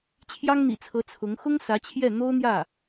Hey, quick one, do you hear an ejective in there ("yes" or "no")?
no